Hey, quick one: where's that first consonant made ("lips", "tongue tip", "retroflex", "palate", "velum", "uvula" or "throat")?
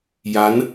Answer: palate